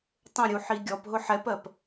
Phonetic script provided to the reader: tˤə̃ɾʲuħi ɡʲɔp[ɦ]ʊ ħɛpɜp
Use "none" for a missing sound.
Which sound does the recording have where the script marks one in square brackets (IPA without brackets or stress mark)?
ɦ